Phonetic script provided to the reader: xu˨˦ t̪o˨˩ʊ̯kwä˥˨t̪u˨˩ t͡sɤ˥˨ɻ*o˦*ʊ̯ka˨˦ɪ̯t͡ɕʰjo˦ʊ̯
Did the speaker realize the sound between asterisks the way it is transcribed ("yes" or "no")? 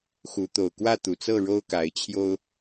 yes